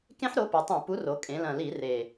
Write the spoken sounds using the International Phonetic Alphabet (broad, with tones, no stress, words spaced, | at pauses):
kẽ˦˥ħɾo˨˥pɘ˩˧ tˤẽ˧˩˧pu˨˥ro˩˧ kʼẽ˩˧lɐ̃˨˩li˧˩˧ re˨˩